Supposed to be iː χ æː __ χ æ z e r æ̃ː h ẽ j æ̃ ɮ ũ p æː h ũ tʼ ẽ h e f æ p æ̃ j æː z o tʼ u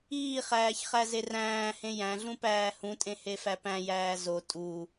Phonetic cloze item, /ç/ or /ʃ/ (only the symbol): ç